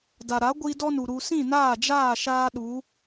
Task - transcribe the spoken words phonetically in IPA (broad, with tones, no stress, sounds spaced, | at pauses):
d a˨ ɾ a˨˦ ɡʷ i˧ d ɔ˦ n u˨ ɾ u˨ s ĩ˦˨ n aː˦˨ d͡ʒ aː˦˨ ʃ aː˦ ɗ u˨˦